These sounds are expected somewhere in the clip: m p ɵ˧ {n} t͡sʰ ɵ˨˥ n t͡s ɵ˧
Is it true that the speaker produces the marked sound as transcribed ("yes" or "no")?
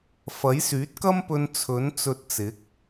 yes